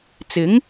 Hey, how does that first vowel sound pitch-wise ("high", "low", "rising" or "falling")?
rising